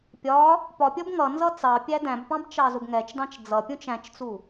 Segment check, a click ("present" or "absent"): absent